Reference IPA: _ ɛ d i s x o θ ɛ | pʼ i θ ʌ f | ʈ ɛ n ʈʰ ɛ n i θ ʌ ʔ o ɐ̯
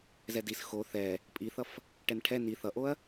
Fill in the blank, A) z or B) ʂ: A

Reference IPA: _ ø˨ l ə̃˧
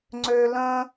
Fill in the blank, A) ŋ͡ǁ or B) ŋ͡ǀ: B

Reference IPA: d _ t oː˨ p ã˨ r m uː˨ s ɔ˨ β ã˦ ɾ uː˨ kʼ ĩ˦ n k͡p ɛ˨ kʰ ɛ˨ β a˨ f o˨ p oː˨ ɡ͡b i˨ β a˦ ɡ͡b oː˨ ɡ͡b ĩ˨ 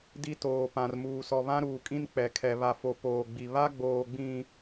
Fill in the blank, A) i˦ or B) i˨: A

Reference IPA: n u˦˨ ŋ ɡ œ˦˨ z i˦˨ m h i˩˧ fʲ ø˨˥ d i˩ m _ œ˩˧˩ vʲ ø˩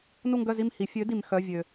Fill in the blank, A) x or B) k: A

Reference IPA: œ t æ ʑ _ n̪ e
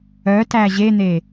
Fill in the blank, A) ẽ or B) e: B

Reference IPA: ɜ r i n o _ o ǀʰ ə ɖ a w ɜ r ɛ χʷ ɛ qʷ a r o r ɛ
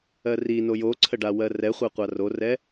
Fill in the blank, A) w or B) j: B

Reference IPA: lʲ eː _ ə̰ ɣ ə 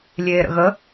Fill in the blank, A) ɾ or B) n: A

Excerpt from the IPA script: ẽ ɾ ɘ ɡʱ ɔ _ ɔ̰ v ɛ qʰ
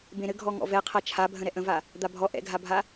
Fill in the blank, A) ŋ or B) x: A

